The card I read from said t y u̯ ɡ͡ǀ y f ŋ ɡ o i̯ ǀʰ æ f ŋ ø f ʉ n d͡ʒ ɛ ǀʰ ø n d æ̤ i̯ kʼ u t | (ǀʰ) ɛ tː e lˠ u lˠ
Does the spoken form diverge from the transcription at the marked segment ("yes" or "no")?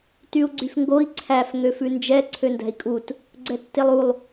yes